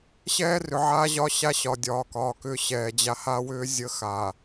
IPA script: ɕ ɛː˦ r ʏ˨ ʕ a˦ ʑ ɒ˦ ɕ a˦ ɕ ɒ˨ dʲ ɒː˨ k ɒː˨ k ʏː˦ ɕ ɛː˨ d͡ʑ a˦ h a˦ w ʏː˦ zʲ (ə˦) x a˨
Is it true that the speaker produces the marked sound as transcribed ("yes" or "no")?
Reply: yes